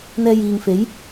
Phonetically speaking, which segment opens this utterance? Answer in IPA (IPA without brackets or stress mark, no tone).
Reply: n̪